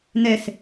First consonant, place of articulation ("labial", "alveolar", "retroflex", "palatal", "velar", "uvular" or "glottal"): alveolar